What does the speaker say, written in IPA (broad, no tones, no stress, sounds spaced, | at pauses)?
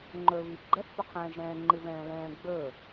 ŋ͡ǃ ɵ β i ɡ͡ǃ ɛ θ p ɵ qʰ ɛ̃ː ʒ ɾ ɛ̃ː ŋ͡ǃ ɨ β ɛ̃ː l ɛ̃ː ɡ͡b ɵ